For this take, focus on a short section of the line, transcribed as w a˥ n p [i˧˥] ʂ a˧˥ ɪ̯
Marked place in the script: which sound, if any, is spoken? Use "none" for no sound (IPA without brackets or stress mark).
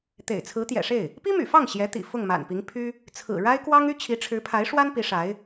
i˧˥